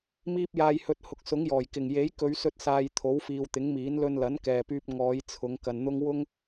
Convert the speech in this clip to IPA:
m iː˧ p̚ j aː˨ j h ɵ˨ t̚ h ʊ˨˥ k̚ s ʊ˨˥ ŋ j ɔː˨˩ j k ɪ˨˩ ŋ j e˨˥ j k ɵ˨˧ ɥ s ɵ˧ t̚ s aː˨ j t̪ʰ o˨˥ w f iː˨ w t̪ ɪ˨˥ ŋ m iː˨˥ n l ɵ˧ n l ɐ˨˥ n k ɛː˨ p yː˧ p̚ ŋ ɔː˨˧ j t͡sʰ ʊ˨˧ ŋ k ɐ˨ n n̪ ʊ˥ ŋ w ʊ˥ ŋ

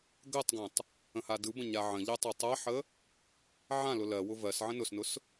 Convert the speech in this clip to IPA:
ɡ ɜ tˤ ɡ ã tˤ | ə̃ h a d ɯ b ə̃ ɲ a ʕ ə̃ ʎ ɜ tˤ o tˤ a ħ ə | ʕ ã l ʊ l ɜ w ʊ v ɜ s ʕ ə̃ n ʊ s n ʊ s

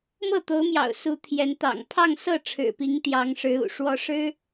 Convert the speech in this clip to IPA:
m ɤ˥˩ t̪ o˧˥ ʊ̯ m j ɑ̰˨˩ ʊ̯ s u˧˥ t̪ʰ j ɛ˧˥ n t̪ ɑ̰˨˩ ŋ pʰ ɑ˥˧ ŋ s ɤ˥˩ ʈ͡ʂʰ ɻ̩˨˩ p i˧˥ ŋ t̪ j ɑ˧˥ ŋ ʂ ɻ̩˧˥ ṵ˨˩ ʂ w ɔ˧˥ ʂ ɻ̩˥

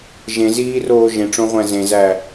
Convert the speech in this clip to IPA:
ʒ ẽ z iː r oː ʒ ẽ ʈ͡ʂ õ ʁʷ æ̃ z ẽ z æ

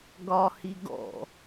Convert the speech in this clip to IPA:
ɡ ɒ h i ɡ ɔ̰

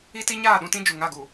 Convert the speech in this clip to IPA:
i˦ t i˦ ɲ aː˦˨ ɗ ũ˦ t ĩ˦ d͡ʒ u˨ ŋ a˦˨ ɡ u˨

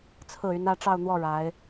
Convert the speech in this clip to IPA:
t͡sʰ ɹ̩˥˩ y˧˥ n ä˥˧ ʈ͡ʂ ɑ˥˧ ʊ̯ n̪ w ɔ˥˩ ɻ a˧˥ ɪ̯

